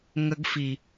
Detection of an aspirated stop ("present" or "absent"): absent